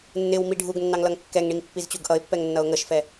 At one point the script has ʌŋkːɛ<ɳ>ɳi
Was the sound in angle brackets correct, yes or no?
no